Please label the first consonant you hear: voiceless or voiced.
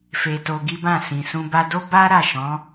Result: voiceless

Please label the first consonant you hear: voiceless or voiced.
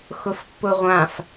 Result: voiceless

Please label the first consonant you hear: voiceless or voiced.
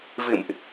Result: voiced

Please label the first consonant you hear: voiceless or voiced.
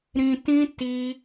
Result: voiced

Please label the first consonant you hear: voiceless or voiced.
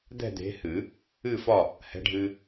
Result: voiced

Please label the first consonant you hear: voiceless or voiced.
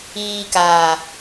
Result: voiceless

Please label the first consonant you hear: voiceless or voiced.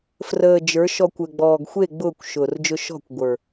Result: voiceless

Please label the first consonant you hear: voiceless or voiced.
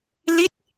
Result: voiced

